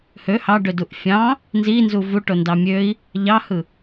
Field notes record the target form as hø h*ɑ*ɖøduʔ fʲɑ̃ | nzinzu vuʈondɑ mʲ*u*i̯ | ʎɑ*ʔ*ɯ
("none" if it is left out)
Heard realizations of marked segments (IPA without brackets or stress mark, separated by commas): ɑ, ø, h